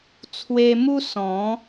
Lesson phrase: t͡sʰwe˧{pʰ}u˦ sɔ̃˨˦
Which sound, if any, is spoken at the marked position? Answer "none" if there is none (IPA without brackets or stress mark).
m